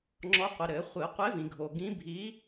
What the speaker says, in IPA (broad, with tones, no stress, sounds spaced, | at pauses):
ŋ͡ǁ ɔ˨˥ qʷ i˩ ɾ ɘ˨˩˦ χʷ ɨ˨˩˦ qʷ e˨˥ v ĩ˩ ɡʱ o˩ ɡ ĩ˨˥ bʱ i˨˥